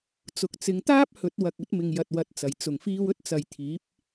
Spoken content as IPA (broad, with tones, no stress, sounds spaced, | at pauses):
t͡s ʊ˨ k̚ t͡s ɪ˨˧ ŋ t̪ aː˥ p̚ h ɵ˨˥ t̚ w ɐ˨ k̚ ɵ˨˥ t̚ m ɪ˨ ŋ j ɐ˨ t̚ w ɐ˨ t̚ t͡s ɐ˨˩ j t͡s ʊ˨˩ ŋ f iː˧ w ɵ˥ t̚ t͡s ɐ˨ j t̪ʰ iː˨˥ p̚